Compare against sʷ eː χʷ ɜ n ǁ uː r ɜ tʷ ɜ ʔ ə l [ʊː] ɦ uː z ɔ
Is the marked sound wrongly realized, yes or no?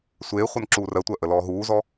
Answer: yes